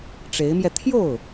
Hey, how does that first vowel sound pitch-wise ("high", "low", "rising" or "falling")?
rising